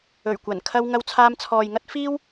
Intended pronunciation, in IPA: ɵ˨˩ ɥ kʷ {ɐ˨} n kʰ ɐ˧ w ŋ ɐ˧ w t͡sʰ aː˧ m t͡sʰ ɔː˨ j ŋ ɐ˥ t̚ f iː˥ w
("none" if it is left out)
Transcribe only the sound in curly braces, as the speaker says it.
ɐ˨˩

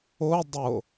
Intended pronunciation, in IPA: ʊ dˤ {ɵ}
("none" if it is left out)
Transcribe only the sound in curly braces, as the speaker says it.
ʊ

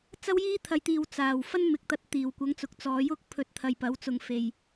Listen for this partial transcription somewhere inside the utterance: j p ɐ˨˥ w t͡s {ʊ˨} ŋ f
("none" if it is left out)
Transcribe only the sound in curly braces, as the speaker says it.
ʊ˨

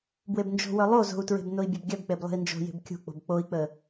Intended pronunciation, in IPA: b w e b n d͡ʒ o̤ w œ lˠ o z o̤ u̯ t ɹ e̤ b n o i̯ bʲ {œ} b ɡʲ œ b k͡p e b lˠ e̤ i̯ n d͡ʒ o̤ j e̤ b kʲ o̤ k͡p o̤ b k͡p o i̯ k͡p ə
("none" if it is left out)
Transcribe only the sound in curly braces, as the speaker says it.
œ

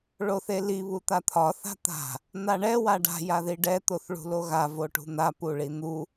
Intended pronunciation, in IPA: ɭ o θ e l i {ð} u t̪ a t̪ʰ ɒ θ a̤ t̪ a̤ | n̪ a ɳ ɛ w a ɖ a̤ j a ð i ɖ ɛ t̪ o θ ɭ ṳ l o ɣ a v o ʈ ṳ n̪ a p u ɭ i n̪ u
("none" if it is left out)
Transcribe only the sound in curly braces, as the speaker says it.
β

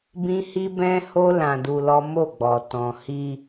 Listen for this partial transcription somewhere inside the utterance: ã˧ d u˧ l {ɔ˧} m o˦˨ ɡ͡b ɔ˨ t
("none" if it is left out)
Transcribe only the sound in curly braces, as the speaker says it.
ɔ˦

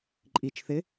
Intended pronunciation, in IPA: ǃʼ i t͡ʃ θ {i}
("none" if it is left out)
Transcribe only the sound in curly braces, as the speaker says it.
ɪ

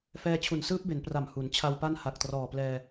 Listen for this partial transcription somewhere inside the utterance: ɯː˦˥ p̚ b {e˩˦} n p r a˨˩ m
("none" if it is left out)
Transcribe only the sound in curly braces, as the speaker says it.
e˩˦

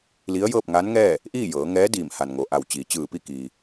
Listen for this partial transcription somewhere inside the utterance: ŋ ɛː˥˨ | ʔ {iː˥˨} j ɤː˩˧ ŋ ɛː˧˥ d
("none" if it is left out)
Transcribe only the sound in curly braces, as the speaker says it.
iː˥˨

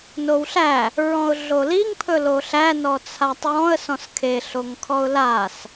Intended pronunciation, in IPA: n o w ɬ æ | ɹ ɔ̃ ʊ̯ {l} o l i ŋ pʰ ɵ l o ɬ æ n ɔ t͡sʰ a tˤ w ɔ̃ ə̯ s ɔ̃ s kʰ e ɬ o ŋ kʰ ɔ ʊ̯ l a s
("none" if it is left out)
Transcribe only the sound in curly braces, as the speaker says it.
ɮ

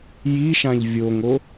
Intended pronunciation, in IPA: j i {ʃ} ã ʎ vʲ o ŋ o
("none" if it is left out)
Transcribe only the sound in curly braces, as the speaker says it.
ʃ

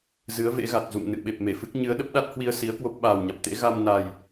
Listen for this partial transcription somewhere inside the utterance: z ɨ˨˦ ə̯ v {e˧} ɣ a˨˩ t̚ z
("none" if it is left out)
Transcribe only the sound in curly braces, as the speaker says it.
ḛ˧˥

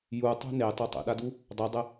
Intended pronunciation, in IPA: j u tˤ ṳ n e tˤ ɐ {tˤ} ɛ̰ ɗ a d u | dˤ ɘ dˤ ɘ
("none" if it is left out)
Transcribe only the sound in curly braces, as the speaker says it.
tˤ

